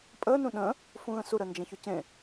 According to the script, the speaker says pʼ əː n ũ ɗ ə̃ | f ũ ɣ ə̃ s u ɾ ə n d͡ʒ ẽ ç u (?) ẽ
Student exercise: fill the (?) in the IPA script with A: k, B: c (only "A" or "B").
B